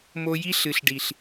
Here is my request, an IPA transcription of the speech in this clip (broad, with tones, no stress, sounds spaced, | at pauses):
m o˧ j i˦ ɬ ɨ˨ ɬ ɖ i˨ ɬ